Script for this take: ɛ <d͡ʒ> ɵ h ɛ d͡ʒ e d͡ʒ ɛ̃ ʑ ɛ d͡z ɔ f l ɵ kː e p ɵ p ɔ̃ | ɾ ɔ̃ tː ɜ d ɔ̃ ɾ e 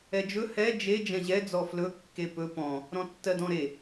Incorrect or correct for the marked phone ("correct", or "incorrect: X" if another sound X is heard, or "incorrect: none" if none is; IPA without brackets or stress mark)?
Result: correct